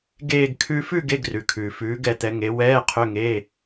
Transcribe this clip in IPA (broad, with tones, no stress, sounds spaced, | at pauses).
ɡ eː˥˧ ɡ kʰ ʉ˥ f ʉ˥˧ ɡ e˧˥˧ ɡ r ʉ˩ kʰ ʉː˩ f ʉː˩˧ ɡ ɛ˩˧ t̪ ɛ˩˧ ŋ e˩˧ w ɛː˧˥˧ qʰ ø˧˥˧ ŋ eː˧˥˧